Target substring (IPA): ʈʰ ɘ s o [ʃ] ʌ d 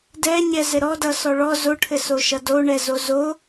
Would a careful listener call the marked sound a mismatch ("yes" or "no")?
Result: no